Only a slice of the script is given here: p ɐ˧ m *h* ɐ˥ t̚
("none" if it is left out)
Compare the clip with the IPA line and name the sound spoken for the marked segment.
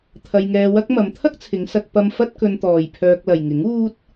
f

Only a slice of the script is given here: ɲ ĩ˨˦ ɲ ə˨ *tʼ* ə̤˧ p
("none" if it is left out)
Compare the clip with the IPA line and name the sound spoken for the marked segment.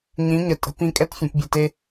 tʼ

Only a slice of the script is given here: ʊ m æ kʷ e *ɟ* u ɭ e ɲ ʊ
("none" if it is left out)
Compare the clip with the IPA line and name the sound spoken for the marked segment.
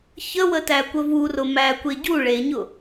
ɟ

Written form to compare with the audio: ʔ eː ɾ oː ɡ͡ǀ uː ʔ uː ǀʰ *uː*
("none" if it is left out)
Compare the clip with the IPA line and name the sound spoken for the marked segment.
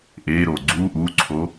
oː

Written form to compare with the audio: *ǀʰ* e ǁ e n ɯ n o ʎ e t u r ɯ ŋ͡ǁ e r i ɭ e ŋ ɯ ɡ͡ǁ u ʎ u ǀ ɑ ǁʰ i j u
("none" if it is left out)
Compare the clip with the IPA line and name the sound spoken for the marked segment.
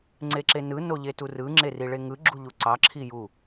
ŋ͡ǀ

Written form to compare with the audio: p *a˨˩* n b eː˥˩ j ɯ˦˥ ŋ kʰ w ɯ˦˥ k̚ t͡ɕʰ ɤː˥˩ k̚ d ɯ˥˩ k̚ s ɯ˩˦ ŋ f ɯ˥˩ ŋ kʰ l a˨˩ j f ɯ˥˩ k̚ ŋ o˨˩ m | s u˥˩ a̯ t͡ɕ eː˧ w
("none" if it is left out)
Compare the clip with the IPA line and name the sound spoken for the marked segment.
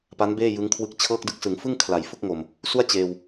a˦˥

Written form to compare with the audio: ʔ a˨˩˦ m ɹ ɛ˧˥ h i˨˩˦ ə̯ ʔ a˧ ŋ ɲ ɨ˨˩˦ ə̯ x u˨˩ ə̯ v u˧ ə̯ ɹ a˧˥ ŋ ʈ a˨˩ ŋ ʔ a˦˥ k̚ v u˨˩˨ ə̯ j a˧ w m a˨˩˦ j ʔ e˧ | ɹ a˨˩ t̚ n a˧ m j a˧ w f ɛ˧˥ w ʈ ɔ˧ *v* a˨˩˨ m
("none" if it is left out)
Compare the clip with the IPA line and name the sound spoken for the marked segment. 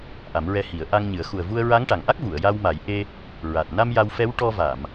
v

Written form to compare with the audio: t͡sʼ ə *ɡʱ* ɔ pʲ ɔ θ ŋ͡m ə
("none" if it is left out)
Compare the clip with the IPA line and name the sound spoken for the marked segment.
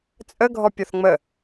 ɡʱ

